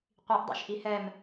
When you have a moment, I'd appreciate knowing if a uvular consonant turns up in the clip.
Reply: yes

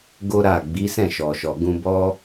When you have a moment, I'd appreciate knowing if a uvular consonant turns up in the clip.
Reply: no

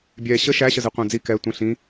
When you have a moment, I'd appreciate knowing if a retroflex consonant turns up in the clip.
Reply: no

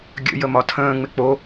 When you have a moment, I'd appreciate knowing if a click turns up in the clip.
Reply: no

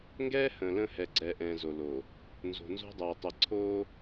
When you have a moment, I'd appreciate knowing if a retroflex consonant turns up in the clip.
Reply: no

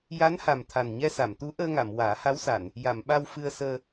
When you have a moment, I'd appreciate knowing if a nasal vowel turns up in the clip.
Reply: no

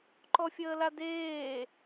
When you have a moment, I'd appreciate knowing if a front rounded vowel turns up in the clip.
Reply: no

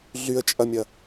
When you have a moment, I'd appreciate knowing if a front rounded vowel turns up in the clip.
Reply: yes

